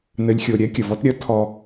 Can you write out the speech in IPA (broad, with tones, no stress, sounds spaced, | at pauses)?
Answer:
n ɘ˧ lʲ xʲ o˧ ɾʲ ɛ˦ kʲ ə˨ v ɔ˦ t ɾʲ ɐ˦ tʰ ɔ˧